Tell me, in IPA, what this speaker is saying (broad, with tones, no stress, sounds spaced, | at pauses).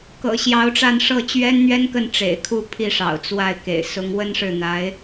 k ɤ̰˨˩ ɕ j ɑ˧˥ ʊ̯ ʈ͡ʂ a˥˧ n ʂ ɤ˥˩ t͡ɕ ɥ ɛ˥ n n̪ ɥ ɛ˥ n k ə˥˩ n ʈ͡ʂ ḛ˨˩ ɪ̯ kʰ u˥˧ pʰ i˥˩ ʂ ɑ̰˨˩ ʊ̯ t͡s w a˥˩ ɪ̯ k ḛ˨˩ ɪ̯ s ʊ˧˥ ŋ w ə˥ n ʂ ɻ̩˥˩ n̪ a˧˥ ɪ̯